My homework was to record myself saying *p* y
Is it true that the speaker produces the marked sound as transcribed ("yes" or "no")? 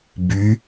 no